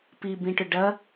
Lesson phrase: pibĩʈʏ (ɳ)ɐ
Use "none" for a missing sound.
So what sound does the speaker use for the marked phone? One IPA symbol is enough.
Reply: ɖ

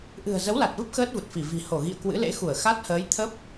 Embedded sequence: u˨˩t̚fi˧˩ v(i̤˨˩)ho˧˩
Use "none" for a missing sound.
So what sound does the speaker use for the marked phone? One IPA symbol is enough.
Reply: i̤˨˩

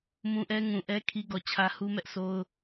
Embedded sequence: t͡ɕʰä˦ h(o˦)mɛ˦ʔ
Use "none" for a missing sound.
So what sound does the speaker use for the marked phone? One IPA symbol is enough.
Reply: u˦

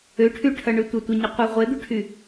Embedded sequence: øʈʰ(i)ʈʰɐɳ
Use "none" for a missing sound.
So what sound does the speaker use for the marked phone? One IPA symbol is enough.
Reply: y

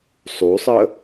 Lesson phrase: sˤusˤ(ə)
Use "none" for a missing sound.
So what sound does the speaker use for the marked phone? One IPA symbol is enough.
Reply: ə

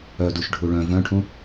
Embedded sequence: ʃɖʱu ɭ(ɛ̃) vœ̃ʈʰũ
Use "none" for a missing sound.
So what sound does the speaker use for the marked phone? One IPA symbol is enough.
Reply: œ̃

